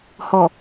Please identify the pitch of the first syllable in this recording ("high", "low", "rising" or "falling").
low